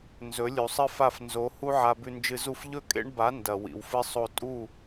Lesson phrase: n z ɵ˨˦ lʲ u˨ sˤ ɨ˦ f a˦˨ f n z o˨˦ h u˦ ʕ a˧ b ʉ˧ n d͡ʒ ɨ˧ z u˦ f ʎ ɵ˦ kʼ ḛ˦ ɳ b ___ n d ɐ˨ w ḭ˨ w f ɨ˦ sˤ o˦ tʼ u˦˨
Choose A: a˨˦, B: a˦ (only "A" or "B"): A